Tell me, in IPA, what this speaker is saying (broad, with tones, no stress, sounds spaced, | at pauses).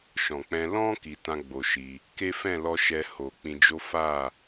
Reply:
ʃ ɔ̃˨ k͡p ɛ̃˧ l ɔ̃˦ k i˧ t ã˦ ɡ͡b o˧ ʃ i˧ | k e˦ f ɛ̃˦˨ l ɔ˧ ʃ ɛ˧ h o˨ k͡p ĩ˧ d͡ʒ o˦ f a˦˨